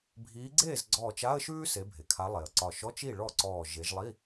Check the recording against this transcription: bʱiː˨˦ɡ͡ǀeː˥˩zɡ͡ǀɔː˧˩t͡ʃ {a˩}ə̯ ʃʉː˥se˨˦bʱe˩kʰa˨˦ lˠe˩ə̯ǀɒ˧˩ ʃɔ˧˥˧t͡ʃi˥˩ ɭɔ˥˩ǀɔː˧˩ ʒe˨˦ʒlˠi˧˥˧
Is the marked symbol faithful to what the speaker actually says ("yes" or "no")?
no